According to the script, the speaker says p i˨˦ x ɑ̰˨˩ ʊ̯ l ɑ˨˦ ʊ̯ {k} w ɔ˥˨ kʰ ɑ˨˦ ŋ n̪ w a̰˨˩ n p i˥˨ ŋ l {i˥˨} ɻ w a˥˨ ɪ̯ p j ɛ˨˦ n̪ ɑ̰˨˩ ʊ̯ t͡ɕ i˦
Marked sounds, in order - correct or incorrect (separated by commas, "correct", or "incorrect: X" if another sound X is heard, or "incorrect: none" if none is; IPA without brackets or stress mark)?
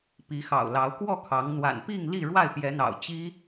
correct, correct